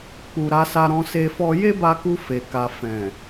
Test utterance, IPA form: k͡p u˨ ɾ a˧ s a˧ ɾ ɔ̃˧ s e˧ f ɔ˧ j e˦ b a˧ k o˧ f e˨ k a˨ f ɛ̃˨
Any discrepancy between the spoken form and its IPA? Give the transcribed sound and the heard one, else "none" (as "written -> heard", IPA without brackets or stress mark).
o˧ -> u˧